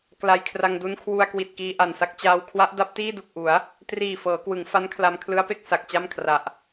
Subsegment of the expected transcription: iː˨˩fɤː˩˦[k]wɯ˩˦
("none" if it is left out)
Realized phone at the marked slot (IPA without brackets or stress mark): k